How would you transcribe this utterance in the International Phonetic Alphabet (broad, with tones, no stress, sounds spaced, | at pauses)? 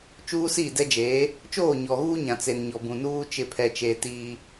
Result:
t͡ʃ uː˦ s i˦˨ d ɛ˦ d͡ʒ eː˨˦ | t͡ʃ oː˦˨ ɲ ɔ˨ ɣ uː˦ ɲ ã˨ t͡s e˨ n ɲ ɔ˨ b ũ˨ n uː˦ t͡ʃ ɪ˦˨ pʰ ɛ˦ t͡ʃ e˦ t iː˦